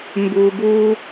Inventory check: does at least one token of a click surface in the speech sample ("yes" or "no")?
no